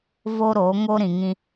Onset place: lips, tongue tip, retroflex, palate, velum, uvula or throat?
lips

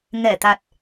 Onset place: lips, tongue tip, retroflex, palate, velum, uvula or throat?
velum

